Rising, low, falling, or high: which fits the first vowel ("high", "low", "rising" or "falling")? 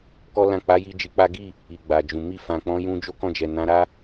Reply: high